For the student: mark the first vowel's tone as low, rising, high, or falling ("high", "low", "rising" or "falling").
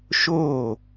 falling